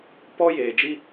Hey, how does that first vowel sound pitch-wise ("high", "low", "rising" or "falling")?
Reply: high